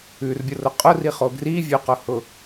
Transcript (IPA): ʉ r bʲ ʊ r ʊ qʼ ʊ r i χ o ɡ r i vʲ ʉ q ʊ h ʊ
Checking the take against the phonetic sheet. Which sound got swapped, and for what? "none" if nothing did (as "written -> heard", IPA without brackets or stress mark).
none